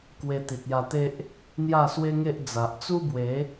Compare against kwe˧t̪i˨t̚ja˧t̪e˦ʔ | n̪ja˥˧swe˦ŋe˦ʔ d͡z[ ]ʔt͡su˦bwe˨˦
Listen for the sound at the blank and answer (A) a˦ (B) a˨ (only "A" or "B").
B